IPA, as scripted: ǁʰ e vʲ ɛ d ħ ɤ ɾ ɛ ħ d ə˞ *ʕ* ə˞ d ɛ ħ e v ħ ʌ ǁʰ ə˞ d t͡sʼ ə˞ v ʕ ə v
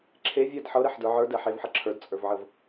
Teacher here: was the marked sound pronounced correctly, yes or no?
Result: yes